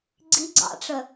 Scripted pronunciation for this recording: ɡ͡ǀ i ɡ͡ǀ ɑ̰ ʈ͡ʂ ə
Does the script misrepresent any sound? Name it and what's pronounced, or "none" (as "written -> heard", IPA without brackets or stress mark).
none